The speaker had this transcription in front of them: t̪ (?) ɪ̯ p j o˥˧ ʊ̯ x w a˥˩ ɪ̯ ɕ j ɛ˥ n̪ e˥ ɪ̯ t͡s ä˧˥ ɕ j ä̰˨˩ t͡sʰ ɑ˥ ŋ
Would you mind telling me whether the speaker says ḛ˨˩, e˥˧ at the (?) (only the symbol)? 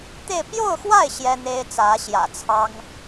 e˥˧